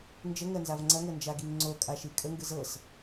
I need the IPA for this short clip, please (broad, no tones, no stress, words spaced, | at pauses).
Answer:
nd͡ʒəŋɜnzav ŋ͡ǀɐŋɤnd͡ʒaɡiŋ ŋ͡ǀokʼaʃi kʼəŋɡɯ zɤs